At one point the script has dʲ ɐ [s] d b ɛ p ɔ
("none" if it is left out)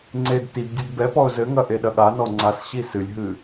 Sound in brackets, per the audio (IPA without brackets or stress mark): none